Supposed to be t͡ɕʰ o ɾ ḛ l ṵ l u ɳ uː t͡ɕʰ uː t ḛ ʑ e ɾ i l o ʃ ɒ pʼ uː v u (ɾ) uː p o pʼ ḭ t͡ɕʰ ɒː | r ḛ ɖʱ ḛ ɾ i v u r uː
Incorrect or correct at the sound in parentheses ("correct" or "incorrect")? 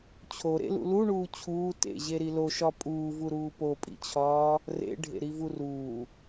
correct